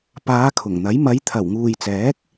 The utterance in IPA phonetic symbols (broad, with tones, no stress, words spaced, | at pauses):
paː˨˧ kʰʊ˨˩ŋn̪ɐ˨˥j mɐ˨˧jt̪ʰɐ˨˩wŋuː˨jt͡sɛː˨˥k̚